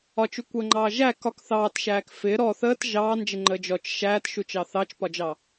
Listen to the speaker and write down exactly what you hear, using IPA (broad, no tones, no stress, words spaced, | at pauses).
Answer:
ɒt͡ʃukʷəːŋ͡ǃɑː ʒæ kɒk θɑːtʃæːk fɪ ɾɔ θəːt ʒɑːnd͡ʒɪŋ͡ǃəː d͡ʒɔt͡ʃ ʃæːtʃut͡ʃɑ θɑt͡ʃpɒd͡ʒɑ